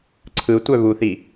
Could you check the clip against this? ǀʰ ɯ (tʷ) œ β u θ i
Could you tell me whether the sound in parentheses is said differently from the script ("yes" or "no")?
no